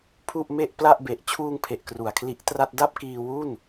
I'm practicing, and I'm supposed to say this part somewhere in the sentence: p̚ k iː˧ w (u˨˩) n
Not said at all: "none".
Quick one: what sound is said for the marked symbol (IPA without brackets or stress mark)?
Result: u˥˩